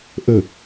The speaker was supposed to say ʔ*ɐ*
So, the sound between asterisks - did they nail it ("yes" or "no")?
no